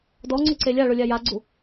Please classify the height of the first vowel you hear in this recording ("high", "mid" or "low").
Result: mid